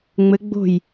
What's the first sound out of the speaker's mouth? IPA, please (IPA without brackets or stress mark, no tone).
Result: ŋ͡m